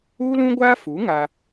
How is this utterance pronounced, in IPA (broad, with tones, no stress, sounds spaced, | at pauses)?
uː˦ l ũ˦ ɡʷ aː˦ f u˨˦ ŋ a˦